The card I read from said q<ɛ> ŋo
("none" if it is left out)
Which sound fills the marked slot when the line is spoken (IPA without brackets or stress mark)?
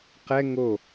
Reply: ɛ